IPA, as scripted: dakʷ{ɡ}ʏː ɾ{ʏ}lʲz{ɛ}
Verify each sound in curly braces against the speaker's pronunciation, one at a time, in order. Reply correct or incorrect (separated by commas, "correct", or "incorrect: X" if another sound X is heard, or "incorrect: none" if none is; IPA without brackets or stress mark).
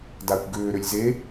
correct, correct, incorrect: e